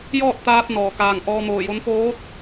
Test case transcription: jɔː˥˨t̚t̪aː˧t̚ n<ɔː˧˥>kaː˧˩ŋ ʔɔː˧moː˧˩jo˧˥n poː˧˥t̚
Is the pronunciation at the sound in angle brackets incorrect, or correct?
incorrect